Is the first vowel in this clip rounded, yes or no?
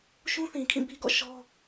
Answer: yes